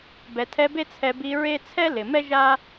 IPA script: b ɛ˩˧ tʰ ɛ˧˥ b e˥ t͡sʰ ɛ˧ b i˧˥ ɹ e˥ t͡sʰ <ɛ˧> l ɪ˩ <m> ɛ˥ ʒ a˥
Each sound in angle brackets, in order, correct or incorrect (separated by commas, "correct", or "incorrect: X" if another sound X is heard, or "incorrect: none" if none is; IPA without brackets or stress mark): incorrect: ɛ˥, correct